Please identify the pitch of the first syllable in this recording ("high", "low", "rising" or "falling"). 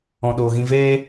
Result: low